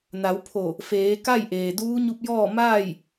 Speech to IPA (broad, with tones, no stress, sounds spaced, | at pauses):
n a˩˧ w pʰ o˧˩ | f eː˩˧ k a˥˨ j ʔ eː˩ d uː˧˥ ɲ u˧ p̚ j ɔː˥˨ m aː˥˨ j